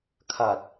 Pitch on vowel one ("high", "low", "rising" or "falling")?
low